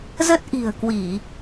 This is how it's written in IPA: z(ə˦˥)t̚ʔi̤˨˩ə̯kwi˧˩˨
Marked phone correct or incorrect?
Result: correct